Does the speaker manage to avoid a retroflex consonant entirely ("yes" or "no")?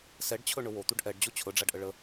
no